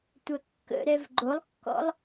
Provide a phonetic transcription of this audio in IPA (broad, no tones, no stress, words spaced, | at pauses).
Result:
tʷɐkːə̰ɾɛv ɡ͡ǃolˠkːɔ̰lˠ